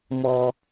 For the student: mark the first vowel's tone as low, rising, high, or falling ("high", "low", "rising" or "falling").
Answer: high